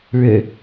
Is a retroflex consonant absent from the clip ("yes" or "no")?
no